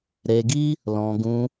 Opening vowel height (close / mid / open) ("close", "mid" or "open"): mid